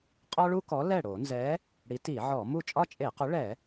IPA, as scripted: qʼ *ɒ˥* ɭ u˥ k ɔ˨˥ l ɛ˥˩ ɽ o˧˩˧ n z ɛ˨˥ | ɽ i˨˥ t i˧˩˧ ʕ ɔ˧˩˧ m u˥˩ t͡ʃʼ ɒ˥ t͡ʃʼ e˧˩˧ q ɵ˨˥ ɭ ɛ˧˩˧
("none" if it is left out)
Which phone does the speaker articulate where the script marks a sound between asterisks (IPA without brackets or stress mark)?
ɒ˥